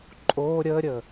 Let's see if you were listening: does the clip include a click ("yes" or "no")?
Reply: yes